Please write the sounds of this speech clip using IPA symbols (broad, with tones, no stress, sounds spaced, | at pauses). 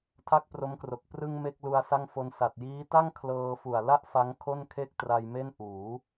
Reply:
tʰ a˥˩ k̚ p r o˦˥ m k r o˨˩ k̚ p r ɯ˧ ŋ m e˥˩ k̚ l u˧ a̯ s a˥˩ ŋ f o˧ n s a˨˩ t̚ j iː˦˥ t a˥˩ ŋ kʰ l ɤː˧ f u˨˩ a̯ l a˥˩ ʔ f a˦˥ ŋ kʰ o˥˩ n kʰ e˥˩ k̚ t r a˧ j m e˥˩ n ʔ uː˩˦